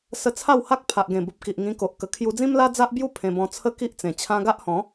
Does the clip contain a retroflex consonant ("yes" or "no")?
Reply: no